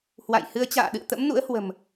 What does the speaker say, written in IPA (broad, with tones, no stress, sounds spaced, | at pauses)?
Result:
h w a̰˧˨ j h ɨ˨˦ ə̯ t͡ɕ a̰ː˧˨ ɗ ɨ̰˧˨ ə̯ t̪ ə̰˧˥ m n ṵ˧˥ ə̯ h w ə̤˨˩ m